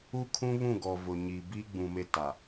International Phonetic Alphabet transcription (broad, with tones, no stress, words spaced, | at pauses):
u˦ kʰũ˦βũ˦˨ɡɔ˨ vʊ˨ɲi˨ bi˦ɡ͡bũ˨ me˦ta˨